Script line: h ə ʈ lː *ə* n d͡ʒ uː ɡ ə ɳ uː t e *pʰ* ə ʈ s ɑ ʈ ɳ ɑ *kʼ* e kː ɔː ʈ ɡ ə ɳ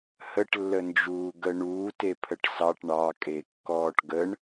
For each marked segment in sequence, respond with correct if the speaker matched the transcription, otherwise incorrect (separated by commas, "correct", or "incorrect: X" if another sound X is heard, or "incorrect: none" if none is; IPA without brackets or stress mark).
correct, correct, correct